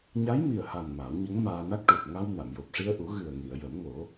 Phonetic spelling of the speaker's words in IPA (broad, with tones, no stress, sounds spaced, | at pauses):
ɲ a˧˥ j m i˨˩ ə̯ h a˨˩ n m a˨˩˦ w ɲ ə˧˥ ŋ m aː˧ n a˦˥ k̚ ʈ u˨˩ p̚ ŋ a˧ w n a˨˩˨ m j o˨˩ p̚ ʂ i˧ ə̯ ʔ u˨˩˦ ɣ ɨ˨˩ ə̯ ŋ i˨˩˨ ə̯ j ə˨˩˦ m ŋ o˨˩˦